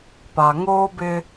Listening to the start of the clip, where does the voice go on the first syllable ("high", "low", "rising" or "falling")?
low